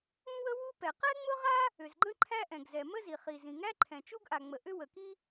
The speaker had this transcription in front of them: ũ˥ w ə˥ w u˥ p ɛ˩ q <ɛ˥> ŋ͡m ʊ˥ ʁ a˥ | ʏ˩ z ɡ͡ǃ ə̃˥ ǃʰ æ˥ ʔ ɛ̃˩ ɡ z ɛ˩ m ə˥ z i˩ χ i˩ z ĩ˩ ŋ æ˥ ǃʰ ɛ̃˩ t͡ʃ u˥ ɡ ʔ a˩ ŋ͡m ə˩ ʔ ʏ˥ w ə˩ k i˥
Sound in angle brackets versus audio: correct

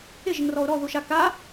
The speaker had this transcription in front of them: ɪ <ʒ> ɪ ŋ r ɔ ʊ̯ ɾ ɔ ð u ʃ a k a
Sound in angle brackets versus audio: correct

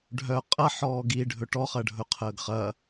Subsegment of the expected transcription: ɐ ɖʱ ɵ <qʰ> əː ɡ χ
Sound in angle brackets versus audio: correct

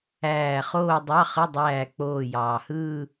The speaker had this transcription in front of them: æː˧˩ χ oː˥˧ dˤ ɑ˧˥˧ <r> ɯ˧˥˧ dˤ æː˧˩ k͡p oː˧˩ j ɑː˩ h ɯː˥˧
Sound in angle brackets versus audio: incorrect: χ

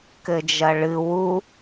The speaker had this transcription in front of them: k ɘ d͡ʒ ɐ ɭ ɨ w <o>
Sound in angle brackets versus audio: incorrect: u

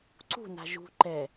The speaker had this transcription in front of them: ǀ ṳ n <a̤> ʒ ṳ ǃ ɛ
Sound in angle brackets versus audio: correct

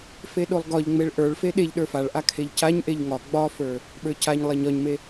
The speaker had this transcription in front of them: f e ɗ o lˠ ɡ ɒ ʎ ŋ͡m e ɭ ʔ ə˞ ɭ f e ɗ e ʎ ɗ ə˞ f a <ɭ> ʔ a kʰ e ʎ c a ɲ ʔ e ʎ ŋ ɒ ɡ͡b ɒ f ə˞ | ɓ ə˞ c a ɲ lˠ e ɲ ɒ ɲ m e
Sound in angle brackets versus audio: correct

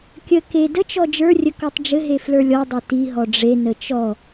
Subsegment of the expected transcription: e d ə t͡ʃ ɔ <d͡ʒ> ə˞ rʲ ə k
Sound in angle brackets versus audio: correct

